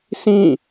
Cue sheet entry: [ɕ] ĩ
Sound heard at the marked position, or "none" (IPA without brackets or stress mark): s